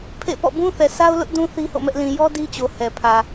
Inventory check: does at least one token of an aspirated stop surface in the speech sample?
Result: yes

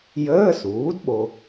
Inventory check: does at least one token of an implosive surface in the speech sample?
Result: yes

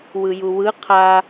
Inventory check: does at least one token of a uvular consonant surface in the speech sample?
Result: yes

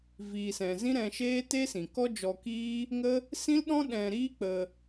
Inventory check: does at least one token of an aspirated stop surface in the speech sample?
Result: no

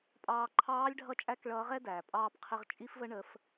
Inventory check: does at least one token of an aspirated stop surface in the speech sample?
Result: yes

